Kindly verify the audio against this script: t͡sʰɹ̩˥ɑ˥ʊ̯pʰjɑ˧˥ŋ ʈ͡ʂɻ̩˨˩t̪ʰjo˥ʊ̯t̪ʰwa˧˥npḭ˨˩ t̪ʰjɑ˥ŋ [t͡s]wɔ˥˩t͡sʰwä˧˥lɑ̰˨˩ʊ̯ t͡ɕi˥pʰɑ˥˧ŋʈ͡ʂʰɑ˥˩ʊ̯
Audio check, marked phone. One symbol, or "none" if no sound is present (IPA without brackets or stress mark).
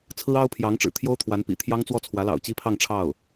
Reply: t͡s